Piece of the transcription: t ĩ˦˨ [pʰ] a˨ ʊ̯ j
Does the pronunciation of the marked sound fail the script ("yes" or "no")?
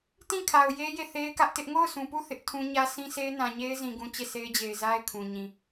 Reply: yes